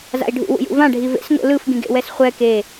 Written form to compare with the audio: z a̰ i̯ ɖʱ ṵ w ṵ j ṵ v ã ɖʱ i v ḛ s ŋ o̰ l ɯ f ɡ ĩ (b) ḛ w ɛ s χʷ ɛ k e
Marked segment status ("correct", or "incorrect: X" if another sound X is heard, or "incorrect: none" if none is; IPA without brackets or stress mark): incorrect: ɡ